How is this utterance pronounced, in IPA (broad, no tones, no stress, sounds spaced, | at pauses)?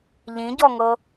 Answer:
ʎ ĩ ɟ ɔ ŋ ɤ